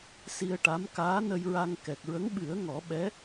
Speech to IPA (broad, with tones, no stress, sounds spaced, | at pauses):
s i˧ ə̯ ʈ a˧˥ m k aː˧˥ n ə˧ j ɹ a˧ ŋ k ɛ˨˩ k̚ ɹ ə˧˥ ŋ ɓ ɨ˨˩˦ ə̯ ŋ ɔ˨˩˦ ɓ ɛ˧˥